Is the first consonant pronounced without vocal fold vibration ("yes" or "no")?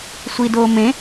yes